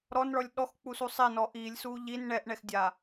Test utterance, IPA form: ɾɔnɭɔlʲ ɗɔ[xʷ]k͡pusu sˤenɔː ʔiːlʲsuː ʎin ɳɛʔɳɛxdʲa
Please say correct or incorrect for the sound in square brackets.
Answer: incorrect